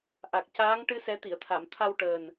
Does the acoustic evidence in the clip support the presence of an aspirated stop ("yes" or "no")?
yes